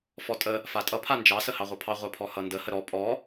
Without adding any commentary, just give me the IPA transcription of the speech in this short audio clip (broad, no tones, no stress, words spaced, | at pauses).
fɔtʼə | fatʼʌ pʰand͡ʒɑ səhɑʁʷʌpʰɑ ʁʷapʰɔhʌndə həɾɔ pʼɔ